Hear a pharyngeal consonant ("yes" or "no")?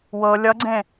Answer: no